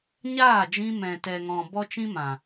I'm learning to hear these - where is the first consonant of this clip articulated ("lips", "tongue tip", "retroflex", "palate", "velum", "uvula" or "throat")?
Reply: palate